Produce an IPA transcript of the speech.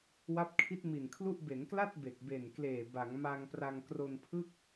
w a˦˥ p̚ kʰ i˦˥ t̚ m i˨˩ n kʰ l u˥˩ ʔ b e˩˦ n k l a˥˩ t̚ b e˨˩ k̚ b e˨˩ n k l eː˨˩ b a˩˦ ŋ m a˧ ŋ p r a˧ ŋ k r o˧ n pʰ ɯ˥˩ k̚

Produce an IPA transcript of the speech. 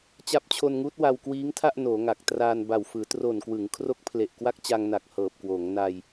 t͡ɕ a˦˥ p̚ t͡ɕʰ o˧ n ŋ uː˦˥ t̚ w a˧ w k w iː˦˥ ŋ tʰ a˥˩ ʔ n oː˩˦ ŋ a˨˩ k̚ t r aː˧ n b a˨˩ w f ɯː˩˦ t r o˨˩ n k w ɯ˩˦ ŋ kʰ r o˦˥ k̚ pʰ l e˨˩ ʔ k w a˥˩ k̚ t͡ɕ a˧ ŋ n a˨˩ k̚ h ɤː˨˩ p̚ k w oː˩˦ ŋ n a˧ j

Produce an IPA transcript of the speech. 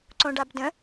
ǀ õ ɖ a b d ə̃

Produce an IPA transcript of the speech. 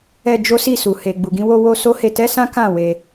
ɛ˧ d͡ʒ o˦ s i˦˨ s u˨ h e˨ ɡ͡b u˨ ɡ ĩ˧ w o˧ w o˧ s o˦ h e˧ t ɛ˦ s ã˦ k ã˦˨ w e˧

